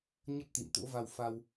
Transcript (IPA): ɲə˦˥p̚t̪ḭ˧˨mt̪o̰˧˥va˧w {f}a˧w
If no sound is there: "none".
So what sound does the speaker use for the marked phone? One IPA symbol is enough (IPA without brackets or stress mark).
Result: f